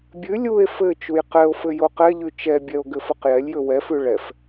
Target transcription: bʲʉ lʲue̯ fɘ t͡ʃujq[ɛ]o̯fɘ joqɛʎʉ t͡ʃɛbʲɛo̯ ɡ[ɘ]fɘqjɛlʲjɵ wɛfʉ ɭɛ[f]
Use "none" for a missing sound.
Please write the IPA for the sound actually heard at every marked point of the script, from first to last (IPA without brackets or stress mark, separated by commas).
ɛ, ɘ, f